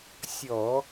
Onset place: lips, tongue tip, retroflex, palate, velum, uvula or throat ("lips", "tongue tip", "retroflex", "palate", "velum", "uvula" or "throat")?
tongue tip